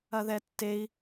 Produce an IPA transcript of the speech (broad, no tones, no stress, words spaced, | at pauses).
ɐðɛtːei̯